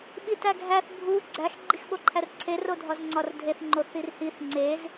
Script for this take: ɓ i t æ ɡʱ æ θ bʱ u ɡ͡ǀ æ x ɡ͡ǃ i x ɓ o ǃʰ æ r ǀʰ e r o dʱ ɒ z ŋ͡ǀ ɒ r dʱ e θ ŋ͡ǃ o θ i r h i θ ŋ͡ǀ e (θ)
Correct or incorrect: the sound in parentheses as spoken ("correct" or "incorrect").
incorrect